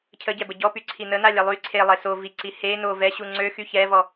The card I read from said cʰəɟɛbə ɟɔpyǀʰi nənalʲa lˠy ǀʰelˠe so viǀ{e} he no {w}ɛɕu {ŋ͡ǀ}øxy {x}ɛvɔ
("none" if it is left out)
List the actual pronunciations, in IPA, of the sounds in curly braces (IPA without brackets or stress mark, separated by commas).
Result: i, v, ŋ͡ǀ, ç